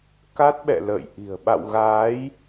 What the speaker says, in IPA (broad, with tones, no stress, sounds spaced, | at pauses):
k a˦˥ t̚ ɓ ɛ̰˧˨ l ə̰ː˧˨ j ʔ i̤˨˩ ə̯ ɓ a̰˧˨ w ɣ aː˨˦ j